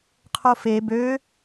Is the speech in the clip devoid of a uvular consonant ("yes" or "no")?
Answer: no